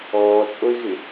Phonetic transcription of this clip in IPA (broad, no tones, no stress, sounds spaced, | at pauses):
ɔː t͡sʼ o ɪ̯ ɣ ɪ